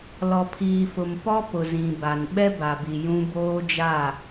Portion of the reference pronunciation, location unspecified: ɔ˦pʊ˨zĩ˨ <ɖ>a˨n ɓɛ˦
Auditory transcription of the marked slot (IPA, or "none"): b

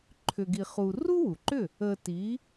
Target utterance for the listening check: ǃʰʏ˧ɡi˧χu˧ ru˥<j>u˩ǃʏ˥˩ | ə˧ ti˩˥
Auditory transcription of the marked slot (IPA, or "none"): w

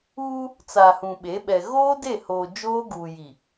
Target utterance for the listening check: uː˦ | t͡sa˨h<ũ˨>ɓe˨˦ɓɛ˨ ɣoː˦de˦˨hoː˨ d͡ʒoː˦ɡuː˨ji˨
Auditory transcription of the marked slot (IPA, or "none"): ũ˨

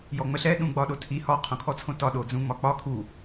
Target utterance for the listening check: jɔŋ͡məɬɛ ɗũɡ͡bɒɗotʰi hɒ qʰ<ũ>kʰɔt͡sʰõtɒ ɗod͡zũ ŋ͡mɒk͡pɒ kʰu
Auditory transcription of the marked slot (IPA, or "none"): õ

